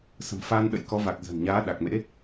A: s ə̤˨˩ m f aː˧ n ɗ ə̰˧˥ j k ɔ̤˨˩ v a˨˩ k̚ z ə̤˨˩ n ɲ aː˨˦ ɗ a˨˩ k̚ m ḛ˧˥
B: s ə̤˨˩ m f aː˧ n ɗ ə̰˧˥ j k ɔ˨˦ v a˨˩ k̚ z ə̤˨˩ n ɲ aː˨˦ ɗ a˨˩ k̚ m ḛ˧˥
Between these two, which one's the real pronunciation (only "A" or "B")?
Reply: B